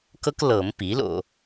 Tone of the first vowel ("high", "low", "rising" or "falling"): high